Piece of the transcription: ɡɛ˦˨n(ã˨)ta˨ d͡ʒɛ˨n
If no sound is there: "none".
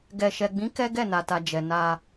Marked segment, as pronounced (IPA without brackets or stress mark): a˨